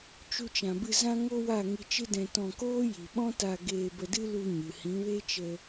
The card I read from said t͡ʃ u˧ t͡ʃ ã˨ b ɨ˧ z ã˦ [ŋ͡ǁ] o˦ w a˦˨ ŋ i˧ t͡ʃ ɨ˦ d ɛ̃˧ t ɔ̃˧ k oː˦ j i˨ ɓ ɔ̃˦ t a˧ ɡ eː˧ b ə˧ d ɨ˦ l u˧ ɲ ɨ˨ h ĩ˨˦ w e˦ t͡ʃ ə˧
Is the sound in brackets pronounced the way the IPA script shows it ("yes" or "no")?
no